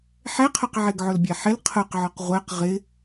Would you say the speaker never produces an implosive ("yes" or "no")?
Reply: yes